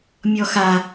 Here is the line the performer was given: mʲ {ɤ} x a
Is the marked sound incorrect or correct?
incorrect